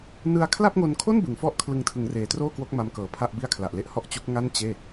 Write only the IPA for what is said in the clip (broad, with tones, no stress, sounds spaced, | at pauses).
n ɯ˧ a̯ kʰ l a˥˩ p̚ ŋ o˧ n kʰ o˥˩ n b ɯ˩˦ ŋ f ɔ˥˩ ʔ kʰ l ɯ˧ ŋ tʰ ɯ˩˦ ŋ r eː˩˦ t r oː˥˩ k w o˦˥ k̚ m a˦˥ m k ɤː˨˩ pʰ a˥˩ ʔ b i˥˩ a̯ kʰ l a˨˩ ʔ l e˥˩ ʔ h ɔ˥˩ ʔ t͡ɕ u˦˥ k̚ ŋ a˥˩ n t͡ɕ eː˥˩